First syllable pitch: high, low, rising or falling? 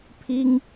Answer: high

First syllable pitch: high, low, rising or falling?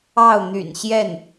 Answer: falling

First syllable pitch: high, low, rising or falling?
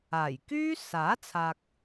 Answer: low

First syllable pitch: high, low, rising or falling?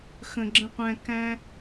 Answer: low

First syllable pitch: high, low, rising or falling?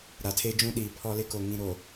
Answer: low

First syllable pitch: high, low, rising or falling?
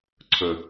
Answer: low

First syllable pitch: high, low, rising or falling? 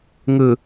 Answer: low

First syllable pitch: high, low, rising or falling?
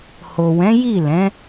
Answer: low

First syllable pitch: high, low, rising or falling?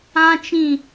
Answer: high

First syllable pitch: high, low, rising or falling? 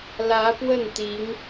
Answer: rising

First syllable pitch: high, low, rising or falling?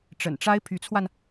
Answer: low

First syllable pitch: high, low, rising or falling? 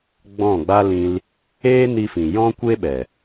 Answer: falling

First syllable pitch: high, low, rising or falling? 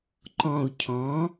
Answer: low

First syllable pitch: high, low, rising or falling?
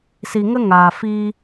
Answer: low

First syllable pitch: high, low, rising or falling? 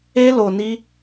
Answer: high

